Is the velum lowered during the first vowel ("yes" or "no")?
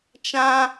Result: yes